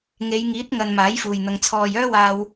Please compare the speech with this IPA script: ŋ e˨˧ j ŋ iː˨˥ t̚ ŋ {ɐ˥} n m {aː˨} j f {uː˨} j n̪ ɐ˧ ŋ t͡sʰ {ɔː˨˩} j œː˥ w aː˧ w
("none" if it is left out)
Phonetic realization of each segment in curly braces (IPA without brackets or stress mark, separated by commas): ɐ˨, aː˨˥, uː˨, ɔː˨